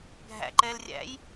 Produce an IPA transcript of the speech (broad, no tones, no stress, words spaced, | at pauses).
ɡʱæ̰ ǃɛːlrʲæ̰j